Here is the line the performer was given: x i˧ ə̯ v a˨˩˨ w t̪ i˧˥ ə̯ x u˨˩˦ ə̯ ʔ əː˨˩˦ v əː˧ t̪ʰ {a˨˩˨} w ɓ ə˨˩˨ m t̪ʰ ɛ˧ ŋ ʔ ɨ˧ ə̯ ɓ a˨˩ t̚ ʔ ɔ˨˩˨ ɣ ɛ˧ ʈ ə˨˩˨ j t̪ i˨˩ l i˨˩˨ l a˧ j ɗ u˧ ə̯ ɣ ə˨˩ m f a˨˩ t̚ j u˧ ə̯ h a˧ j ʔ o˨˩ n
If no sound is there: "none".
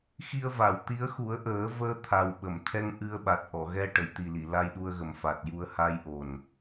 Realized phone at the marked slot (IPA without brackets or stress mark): a˨˩